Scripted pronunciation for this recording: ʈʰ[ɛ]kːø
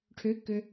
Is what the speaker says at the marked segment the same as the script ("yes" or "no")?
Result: no